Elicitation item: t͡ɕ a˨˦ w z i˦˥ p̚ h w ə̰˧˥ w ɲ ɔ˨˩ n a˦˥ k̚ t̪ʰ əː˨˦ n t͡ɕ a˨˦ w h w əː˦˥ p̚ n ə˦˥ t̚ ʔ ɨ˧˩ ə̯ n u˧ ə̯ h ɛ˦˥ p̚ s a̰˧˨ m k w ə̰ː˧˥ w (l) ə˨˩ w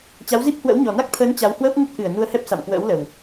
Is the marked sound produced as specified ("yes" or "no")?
yes